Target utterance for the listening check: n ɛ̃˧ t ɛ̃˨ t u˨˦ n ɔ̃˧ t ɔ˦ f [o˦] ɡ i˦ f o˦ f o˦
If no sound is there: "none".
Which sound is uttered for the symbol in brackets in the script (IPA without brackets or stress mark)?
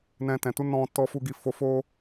u˦